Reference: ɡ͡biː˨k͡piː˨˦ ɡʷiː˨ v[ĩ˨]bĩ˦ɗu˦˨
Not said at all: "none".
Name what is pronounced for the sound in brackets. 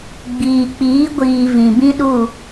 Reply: ĩ˨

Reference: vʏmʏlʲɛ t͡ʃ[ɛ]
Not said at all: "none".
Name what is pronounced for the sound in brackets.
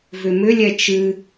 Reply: ɨ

